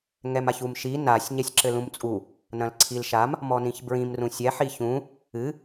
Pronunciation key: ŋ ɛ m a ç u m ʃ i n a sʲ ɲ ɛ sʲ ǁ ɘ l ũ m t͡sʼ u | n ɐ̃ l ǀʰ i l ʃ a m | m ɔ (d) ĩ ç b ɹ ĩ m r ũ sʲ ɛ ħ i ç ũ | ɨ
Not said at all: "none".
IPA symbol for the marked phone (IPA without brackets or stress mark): n